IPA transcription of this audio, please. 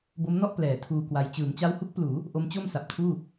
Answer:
b o˦˥ m n ɔ˥˩ ʔ p l ɛː˩˦ tʰ uː˧ k w a˧ j t͡ɕ ɯː˩˦ m t͡ɕ a˦˥ w h u˦˥ k̚ p l uː˩˦ | ʔ o˦˥ m t͡ɕ o˥˩ m s a˨˩ p̚ tʰ uː˥˩

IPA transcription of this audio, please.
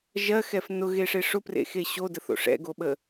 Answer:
ʒ ɜ x ɛ f n ʊ ɣ e ʂ e ʂ ʊ p r ḛ x e ɕ o d ə θ o̰ ʂ ɛ̰ ɡ o ɓ ə

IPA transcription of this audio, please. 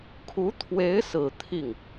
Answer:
kʰ u˧˥ t̪ʰ w e˧˥ ɪ̯ s ɹ̩˨˩ t̪ʰ i˥˩ ŋ

